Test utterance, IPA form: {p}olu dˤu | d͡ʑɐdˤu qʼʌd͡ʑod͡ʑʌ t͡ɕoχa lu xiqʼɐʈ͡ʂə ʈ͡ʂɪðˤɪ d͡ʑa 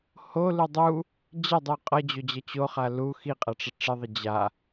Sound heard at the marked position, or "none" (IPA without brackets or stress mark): h